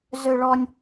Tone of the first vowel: high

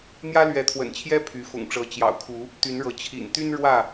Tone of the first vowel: high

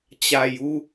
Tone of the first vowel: low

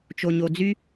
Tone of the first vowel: low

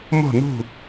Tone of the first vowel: falling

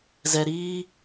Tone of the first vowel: low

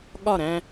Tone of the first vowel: falling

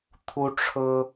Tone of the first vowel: high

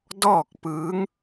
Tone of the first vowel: falling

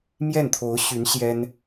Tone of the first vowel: falling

